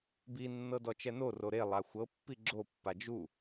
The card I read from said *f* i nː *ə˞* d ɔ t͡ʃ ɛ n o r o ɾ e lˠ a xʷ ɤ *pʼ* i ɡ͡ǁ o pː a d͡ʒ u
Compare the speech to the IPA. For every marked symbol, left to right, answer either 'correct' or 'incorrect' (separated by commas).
incorrect, incorrect, incorrect